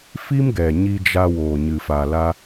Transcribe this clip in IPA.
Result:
f i˦ m ɡ ɛ˨ ɲ i˧ d͡ʒ a˧ w oː˨ ɲ ɨ˨ f a˨ l a˧

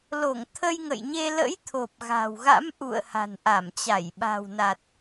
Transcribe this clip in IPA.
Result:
l o˧˩ ŋ t̪ʰ ə˧ j ŋ ə̰˧˨ j ɲ e˧ l ə̰˧˥ j t̪ʰ o˨˩ p̚ ɣ a̤˨˩ w ɣ a̰˧˥ m ʔ ṵ˧˨ ə̯ h a̤˨˩ n ʔ a˧˩ m t͡ɕ a˧˩ j ɓ a̤˨˩ w n a˨˩ t̚

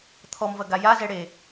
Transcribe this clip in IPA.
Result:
t̪ʰ ɔ m v ɐ ɡ a j a z ɛ ɽ e

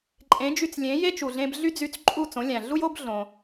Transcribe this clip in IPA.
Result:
ǃʼ ẽ˩˥ d͡ʒ y˧ t͡s lʲ ẽ˩˥ j e˥ t͡ʃ u˩ ɮ ẽ˧ b ɮ y˥ d͡z y˧ t͡s ǃʼ u˥˩ t͡s õ˩˥ lʲ æ̃˩ ɮ u˥ j o˥ b ɮ õ˩

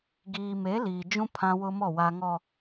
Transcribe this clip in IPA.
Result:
ɡ iː˨ m e˨˦ l iː˨ d͡ʒ ũ˦ pʰ ã˦ w ʊ˦ m ɔ˦˨ w a˨ ŋ ɔ˨

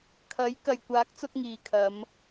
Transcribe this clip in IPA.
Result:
kʰ ɐ˨˥ j k ɐ˨ j kʷ aː˨˥ k̚ t͡s ʊ˧ k̚ ŋ iː˨ kʰ ɐ˨˧ m

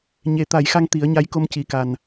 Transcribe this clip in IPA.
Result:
ɲ e˨˩˦ t̪ a˨˩˦ j x a˧ ŋ t̪ i˨˩˦ ə̯ ɲ a˧˥ j k o˧ m c i˨˩˦ k a˨˩ n

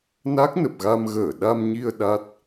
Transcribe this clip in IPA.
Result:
n a˦˥ k̚ n ə˨˩ p̚ ɣ a˧ m ɣ əː˧˩ ɗ a˧ m ɲ i˧ ə̯ ɗ a˦˥ t̚

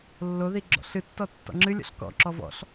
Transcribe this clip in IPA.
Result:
lː o ð i ɡ͡ǁ ɔ̰ ɬ ɨ tː ɔ tː ɔ̰ ŋ͡ǁ ɨ lʲ ɔ̰ ɬ k ɔ̰ ǁ ɔ v ɔ̰ ɬ

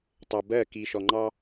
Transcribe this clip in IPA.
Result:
tˤ ɜ˨ b ɜ˦˨ k i˨ ʃ ɔ˨ ŋ͡ǃ ɑ˦

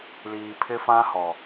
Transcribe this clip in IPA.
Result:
l iː˨ pʰ ɪ˦ f ã˦ h ɔ˨

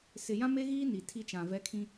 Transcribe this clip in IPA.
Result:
s ɪ˨ j ã˦ m e˦ ɣ iː˦ n i˨ tʰ i˦ t͡ʃ ã˨ v ɛ˦ kʰ ĩ˦

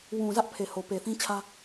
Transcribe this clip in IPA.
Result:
w ũ˨ z ä˦ ʔ pʰ e˨ h o˨ p e˨ θ ĩ˦ t͡ɕʰ ä˦

